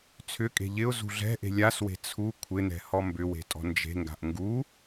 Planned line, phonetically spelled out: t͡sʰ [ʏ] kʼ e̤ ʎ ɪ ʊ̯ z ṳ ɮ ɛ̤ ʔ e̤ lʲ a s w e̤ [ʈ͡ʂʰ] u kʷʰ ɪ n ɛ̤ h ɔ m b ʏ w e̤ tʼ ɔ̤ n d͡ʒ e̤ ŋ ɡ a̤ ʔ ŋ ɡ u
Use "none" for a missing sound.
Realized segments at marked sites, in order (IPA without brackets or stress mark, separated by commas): ʏ, t͡sʰ